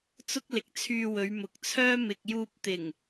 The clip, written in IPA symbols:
t͡sʊ˥k̚lɪ˨k̚t͡sʰyː˧wɵ˨˧ɥ mʊ˨k̚t͡sʰœː˥ mɪ˨k̚juː˧p̚t̪ɪ˨˩ŋ

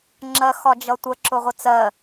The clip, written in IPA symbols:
ŋ͡ǁɜxɒd͡ʒʌtʷə ǁʊʁʷɪt͡sɜ

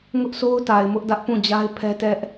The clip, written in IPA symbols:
ŋʊ˦ʔsʰo˦ʊ̯ta˨ɪ̯ mʊ˦ʔdä˦ʔpũ˦˨d͡ʑa˦ɪ̯ pʰɛ˦tɛ˦ʔ

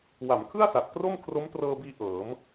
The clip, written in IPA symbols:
wa˩˦mkʰɯ˥˩a̯sa˨˩t̚ kro˥˩m kʰro˦˥mtrɤː˧biː˧ ʔɤː˩˦m

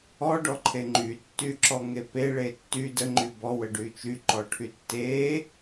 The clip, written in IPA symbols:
ɔɖɔǃʰe ŋ͡ǃytːyǁɔŋe peɭe tːy dəŋ͡ǃy bɔwəɖy t͡ʃyǃɔʈʰy tːe

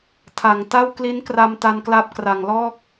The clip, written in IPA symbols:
tʰa˨˩ŋta˥˩w kli˦˥nkra˧mta˧nkla˦˥p̚ kra˨˩ŋlɔː˥˩k̚

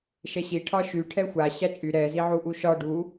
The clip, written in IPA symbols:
ʃɛɕi ʈʰɒʃy ʈʰɛxʷa ɕat͡ʃʼy ɾɛ ziʕuʔuʃɒ ɖu

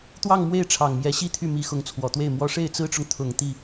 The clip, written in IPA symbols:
t̪wɑ˥˧ŋ mwe˥˩ɪ̯ ʈ͡ʂʰɑ˨˩ŋmjɛ˧˥ɕi˥t̪ʰy˥˩ mi˧˥ xʊ˧˥ŋt͡sʰwɔ˨˩t̪we˥˩ɪ̯mwɔ˥ ʂe˥˩ɪ̯t͡sɹ̩˥ʈ͡ʂʊ˨ŋ t̪ʰʊ˨˩ŋ t̪i˥˩

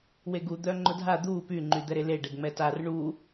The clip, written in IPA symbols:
weɡu d̪œŋ͡ǃʊdʱa d̪u py ŋ͡ǃyd̪ɛɾele ɖɛɡŋ͡mɛtar ɳu

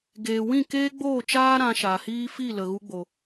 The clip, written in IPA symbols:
ɡeː˨wĩ˦˨keː˦ ɡ͡boː˦˨t͡ʃaː˦ ɾã˧ʃa˨hiː˦ fi˦˨lə˨ ɣu˧ɡ͡bo˨

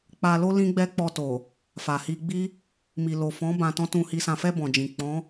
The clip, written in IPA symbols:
k͡pa˧lo˦ lĩ˦ɡ͡bɛ˦ k͡pɔ˧to˨ | fa˨hi˧ ɡ͡bi˦ | mi˨lo˨fɔ̃˨˦ bã˧tɔ̃˦tũ˧hi˧ sã˨fɛ˧ bɔ̃˨d͡ʒĩ˨ k͡pɔ̃˨˦

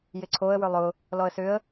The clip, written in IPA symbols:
jɪǀʰoə̯ wʏlˠʊ | lɔə̯sʏə̯

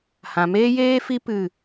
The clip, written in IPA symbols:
hã˨ meː˦jeː˦fi˦ pɨ˦˨

